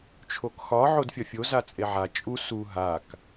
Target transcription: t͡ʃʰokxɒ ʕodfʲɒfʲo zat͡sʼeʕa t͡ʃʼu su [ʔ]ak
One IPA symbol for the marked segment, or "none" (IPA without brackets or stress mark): ɦ